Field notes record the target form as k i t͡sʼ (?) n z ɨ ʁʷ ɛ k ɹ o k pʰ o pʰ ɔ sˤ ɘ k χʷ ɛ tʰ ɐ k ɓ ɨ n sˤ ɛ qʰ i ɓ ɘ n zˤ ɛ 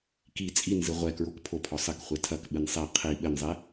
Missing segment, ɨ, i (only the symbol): i